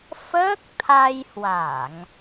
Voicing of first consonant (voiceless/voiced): voiceless